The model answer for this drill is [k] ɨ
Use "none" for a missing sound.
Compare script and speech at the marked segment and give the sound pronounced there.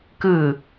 k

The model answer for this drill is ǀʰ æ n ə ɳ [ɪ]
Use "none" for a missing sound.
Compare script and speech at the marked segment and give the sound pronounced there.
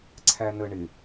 ɪ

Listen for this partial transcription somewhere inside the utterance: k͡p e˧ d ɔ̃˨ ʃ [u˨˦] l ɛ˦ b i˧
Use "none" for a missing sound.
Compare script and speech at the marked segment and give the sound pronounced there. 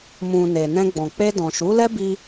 u˨˦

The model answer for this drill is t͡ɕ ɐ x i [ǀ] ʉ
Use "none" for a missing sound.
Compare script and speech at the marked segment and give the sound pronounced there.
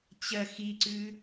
ǀ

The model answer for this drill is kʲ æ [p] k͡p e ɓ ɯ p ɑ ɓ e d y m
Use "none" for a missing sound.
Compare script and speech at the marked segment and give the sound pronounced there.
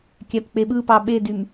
p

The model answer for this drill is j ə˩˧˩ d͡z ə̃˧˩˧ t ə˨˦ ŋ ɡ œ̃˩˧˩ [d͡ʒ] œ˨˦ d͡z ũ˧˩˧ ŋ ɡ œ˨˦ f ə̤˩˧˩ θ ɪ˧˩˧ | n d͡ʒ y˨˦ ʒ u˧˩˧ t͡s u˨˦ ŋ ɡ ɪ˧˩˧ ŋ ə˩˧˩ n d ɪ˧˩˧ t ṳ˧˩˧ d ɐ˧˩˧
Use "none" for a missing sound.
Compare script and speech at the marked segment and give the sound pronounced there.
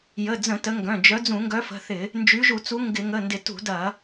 d͡ʒ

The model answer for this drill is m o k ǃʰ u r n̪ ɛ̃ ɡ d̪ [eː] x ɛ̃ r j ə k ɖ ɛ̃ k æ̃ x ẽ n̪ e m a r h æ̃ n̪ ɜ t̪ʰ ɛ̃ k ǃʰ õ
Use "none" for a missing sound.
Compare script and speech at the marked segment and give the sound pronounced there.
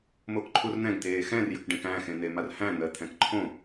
eː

